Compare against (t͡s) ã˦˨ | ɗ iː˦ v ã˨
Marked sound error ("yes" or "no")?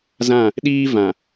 yes